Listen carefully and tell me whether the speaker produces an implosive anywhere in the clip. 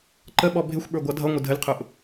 yes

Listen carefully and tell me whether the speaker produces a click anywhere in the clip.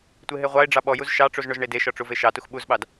no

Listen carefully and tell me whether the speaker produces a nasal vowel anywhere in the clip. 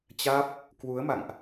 no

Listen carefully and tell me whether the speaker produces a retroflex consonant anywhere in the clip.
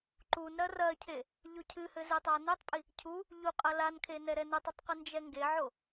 no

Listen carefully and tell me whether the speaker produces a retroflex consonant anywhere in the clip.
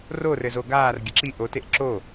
no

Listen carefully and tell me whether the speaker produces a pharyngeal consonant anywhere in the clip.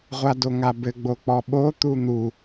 no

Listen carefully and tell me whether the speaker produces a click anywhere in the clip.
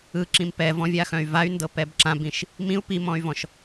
yes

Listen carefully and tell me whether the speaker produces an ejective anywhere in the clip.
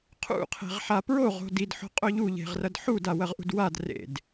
yes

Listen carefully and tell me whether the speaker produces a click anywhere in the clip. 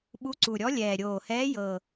yes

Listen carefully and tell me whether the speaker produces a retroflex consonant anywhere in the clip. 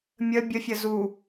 no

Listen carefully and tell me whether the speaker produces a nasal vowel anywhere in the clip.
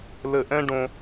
yes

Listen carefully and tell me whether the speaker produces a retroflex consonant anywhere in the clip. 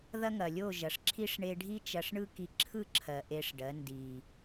yes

